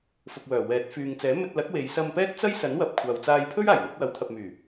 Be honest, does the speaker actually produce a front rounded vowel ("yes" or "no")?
yes